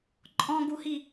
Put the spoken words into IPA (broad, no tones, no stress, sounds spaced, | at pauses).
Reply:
ǃʼ ɔ̃ ɡ u h i